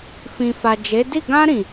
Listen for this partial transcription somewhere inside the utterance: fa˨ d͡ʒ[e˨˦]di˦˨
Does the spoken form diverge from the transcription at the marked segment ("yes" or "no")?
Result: no